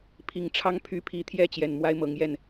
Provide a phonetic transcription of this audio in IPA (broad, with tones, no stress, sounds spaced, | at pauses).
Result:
pʰ i˨˩ ŋ ʈ͡ʂʰ ɑ˦ ŋ pʰ y˨˦ pʰ i˨˦ t̪ʰ j ɛ˥˨ t͡ɕ j ɛ˨˩ n m w a˦ ɪ̯ m ɤ˨˦ ŋ j ɛ˥˨ n